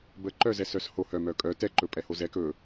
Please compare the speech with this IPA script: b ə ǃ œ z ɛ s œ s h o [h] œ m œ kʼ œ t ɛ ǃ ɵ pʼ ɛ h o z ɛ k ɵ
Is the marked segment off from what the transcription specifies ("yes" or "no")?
no